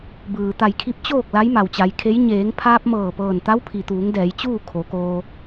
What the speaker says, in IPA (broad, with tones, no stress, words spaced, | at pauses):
bɯː˩ t̪a˧˩jkʰi˧˥p̚ t͡ɕoː˥˨k̚ la˧˥jma˩wt͡ɕa˩˧jkʰe˧˥j ɲeː˩˧ŋpʰaː˧p̚mɤː˧˩ pɤː˧˩nt̪a˧˥wpʰi˩t̪uː˩˧ŋ dɛː˩˧jt͡ɕuː˥˨ kʰo˩˧koː˧